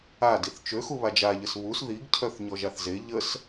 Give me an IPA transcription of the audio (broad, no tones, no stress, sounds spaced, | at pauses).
a d i θ t͡ʃ ø x u β a d͡ʒ a ʎ ə s β u s ð i ɡ cʰ œ θ ɲ ɔ ʒ a θ z e ʎ ə s